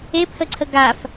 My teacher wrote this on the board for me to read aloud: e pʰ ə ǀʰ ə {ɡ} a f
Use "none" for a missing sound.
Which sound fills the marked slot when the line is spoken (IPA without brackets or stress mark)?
ɡ